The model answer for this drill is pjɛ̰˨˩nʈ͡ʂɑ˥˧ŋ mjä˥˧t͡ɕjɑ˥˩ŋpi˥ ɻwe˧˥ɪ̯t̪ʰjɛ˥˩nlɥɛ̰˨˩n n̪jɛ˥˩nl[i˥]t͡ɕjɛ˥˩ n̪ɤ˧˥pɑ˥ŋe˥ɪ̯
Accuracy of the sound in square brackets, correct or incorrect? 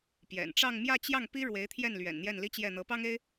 correct